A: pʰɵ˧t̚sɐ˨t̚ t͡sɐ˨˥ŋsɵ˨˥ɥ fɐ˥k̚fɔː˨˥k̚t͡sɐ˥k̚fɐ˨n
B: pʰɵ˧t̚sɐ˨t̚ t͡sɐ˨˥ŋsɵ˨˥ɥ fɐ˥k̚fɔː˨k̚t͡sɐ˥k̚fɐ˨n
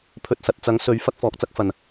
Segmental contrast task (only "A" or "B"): B